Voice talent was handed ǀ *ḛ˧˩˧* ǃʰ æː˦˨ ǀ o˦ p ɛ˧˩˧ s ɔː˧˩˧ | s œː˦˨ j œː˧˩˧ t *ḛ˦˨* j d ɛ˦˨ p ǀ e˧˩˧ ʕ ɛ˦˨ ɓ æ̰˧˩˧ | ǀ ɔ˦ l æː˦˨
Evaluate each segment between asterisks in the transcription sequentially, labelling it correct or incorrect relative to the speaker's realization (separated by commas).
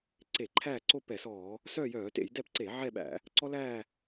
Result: incorrect, incorrect